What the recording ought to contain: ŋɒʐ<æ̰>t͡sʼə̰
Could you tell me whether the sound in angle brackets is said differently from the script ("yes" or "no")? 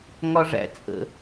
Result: no